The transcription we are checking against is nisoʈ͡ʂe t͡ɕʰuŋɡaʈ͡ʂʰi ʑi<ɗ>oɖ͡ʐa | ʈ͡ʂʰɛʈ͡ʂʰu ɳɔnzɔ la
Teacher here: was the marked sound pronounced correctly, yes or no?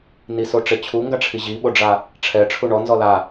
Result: no